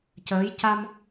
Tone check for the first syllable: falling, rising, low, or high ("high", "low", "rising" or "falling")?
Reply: rising